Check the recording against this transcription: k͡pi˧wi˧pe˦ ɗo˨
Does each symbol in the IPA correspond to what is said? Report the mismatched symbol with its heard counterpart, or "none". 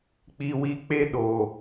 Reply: p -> k͡p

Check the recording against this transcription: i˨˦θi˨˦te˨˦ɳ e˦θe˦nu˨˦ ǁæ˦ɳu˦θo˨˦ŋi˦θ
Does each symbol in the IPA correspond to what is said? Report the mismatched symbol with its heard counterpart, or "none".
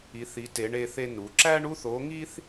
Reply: none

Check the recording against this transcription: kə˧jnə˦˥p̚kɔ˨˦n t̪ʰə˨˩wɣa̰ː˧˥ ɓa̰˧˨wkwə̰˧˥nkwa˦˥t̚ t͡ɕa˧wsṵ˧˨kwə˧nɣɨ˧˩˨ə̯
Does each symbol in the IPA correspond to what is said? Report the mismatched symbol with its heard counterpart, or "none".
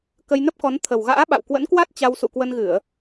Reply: none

